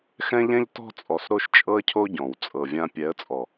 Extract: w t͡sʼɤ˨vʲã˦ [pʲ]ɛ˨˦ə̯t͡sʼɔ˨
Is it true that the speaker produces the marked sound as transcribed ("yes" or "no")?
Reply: yes